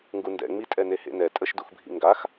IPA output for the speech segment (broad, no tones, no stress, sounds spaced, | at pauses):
ŋ ɡ u n d ɛ̰ ŋ͡m i tʼ ɛ n e h ḛ n ɛ tʼ ə ʃ d u x bʱ ḭ ŋ ɡ a x